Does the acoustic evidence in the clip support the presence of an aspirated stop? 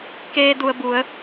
no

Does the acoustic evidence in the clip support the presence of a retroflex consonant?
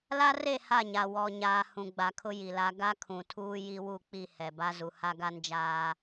no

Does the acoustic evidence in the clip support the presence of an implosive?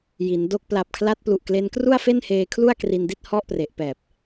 no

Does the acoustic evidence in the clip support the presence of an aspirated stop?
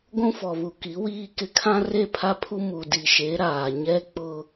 yes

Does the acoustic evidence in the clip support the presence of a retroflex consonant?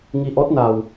no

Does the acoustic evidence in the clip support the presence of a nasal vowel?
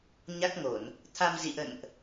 no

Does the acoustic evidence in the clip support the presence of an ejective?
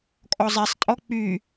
yes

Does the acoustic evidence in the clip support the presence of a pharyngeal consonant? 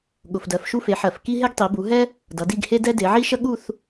yes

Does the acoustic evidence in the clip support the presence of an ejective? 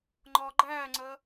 no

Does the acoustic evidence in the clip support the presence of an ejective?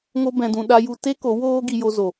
no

